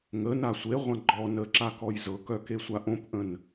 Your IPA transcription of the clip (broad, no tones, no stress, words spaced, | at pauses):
ŋəna sʷeʁʷã ɡ͡ǃɔ nəǁa kɔjzɤkœ kesʷaʔõpʔə̃n